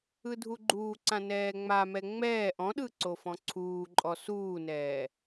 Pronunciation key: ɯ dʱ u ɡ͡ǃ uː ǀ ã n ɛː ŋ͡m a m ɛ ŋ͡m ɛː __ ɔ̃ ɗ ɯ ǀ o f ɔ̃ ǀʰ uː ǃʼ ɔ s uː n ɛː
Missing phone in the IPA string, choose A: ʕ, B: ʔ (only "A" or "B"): B